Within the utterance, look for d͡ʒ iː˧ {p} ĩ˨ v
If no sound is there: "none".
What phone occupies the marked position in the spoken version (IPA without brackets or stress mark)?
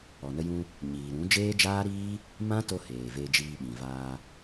ɓ